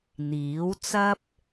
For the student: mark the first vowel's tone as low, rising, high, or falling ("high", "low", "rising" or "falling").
rising